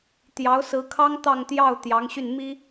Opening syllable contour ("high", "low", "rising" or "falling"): rising